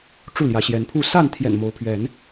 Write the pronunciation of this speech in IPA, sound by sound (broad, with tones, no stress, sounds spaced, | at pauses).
ʈ͡ʂ u˥˨ l j ä˨˦ ɕ j ɛ˨˦ n pʰ u˥˨ s a˥˨ n t̪ʰ j ɛ̰˨˩ n m o˨˦ ʊ̯ pʰ ɥ ɛ˨˦ n